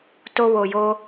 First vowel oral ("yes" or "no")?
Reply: yes